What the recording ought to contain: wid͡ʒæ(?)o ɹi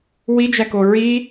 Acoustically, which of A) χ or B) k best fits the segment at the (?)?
B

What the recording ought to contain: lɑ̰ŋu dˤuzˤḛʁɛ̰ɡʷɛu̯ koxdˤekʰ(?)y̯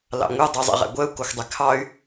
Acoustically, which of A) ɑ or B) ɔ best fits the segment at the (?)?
A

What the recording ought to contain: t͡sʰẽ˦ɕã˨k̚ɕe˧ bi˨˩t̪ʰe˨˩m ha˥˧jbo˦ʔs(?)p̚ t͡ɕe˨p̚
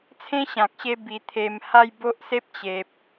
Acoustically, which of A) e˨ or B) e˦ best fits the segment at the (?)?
B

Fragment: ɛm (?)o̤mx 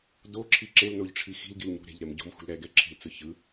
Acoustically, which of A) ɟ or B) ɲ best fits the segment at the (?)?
A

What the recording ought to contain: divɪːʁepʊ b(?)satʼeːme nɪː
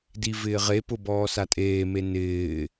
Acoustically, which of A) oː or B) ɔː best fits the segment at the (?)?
B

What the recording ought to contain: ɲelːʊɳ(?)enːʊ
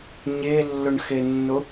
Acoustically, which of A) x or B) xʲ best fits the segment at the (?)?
A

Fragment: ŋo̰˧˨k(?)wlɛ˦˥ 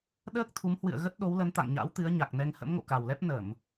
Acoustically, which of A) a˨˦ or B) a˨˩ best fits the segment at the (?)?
B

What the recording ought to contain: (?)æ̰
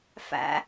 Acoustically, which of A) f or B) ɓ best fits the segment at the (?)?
A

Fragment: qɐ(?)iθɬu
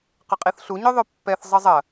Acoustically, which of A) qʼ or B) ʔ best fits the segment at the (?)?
A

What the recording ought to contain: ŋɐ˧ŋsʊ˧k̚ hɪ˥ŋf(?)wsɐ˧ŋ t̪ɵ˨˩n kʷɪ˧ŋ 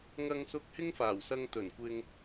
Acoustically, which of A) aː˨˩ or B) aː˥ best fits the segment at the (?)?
A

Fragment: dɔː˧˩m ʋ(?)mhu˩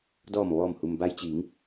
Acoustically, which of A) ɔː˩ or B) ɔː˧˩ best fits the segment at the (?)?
B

